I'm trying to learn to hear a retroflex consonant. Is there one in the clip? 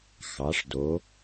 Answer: yes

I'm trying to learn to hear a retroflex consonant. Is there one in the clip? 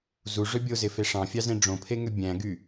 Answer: yes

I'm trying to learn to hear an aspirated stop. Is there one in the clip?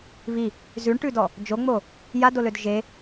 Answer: no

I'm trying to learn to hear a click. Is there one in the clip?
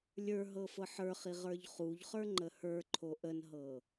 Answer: yes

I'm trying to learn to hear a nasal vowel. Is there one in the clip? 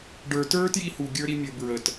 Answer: no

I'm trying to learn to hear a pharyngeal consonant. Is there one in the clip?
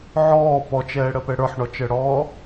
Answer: yes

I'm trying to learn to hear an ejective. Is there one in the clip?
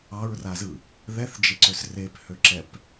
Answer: no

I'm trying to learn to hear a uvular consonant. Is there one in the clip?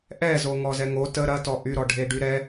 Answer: no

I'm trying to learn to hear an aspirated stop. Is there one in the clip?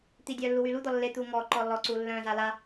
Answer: no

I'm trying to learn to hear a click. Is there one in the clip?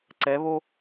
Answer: yes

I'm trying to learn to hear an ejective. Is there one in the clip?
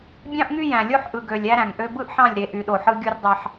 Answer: no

